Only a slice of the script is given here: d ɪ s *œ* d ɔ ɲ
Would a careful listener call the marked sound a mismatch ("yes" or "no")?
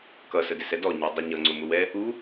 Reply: yes